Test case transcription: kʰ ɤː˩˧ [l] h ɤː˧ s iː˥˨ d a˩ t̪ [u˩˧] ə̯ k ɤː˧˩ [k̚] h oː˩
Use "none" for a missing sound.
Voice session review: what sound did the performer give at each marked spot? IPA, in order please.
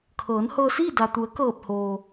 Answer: n, u˩˧, p̚

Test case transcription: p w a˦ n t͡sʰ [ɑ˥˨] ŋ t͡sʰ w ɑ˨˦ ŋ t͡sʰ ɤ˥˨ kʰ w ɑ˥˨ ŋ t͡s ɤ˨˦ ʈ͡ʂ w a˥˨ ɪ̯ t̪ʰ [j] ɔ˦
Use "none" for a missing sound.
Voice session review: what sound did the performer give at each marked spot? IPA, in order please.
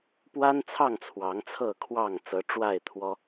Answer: ɑ˥˨, w

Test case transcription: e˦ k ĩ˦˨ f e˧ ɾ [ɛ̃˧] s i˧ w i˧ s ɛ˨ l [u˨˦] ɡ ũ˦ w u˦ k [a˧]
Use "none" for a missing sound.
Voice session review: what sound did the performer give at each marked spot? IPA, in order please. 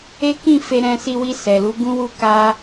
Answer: ɛ̃˧, u˨˦, a˧

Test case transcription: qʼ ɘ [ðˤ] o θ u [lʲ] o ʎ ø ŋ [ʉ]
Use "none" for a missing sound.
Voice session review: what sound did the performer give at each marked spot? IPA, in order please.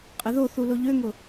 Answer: ð, l, ʊ

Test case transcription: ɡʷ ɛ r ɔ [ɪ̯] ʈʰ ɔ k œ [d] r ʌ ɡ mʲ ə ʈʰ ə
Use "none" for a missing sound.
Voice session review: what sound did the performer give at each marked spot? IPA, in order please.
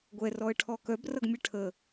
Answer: ə̯, b

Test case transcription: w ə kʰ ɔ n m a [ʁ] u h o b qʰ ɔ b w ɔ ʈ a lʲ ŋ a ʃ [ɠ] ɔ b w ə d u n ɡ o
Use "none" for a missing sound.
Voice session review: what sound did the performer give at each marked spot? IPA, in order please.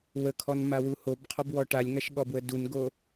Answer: w, ɠ

